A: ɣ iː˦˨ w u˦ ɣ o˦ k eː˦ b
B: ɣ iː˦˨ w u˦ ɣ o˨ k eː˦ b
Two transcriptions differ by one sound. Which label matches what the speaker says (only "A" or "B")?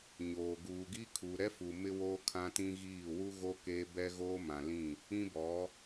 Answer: A